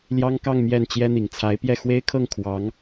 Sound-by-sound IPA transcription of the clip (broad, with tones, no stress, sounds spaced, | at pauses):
l j ɑ˥ ŋ k ɑ˥˧ ŋ m j ɛ˥˩ n t͡ɕ j ɛ˥ n̪ i˨˩ ŋ t͡sʰ a˧˥ ɪ̯ p j ɛ˥˩ x w e˥ ɪ̯ kʰ ɤ˥˩ ŋ kʰ w ɑ˧˥ ŋ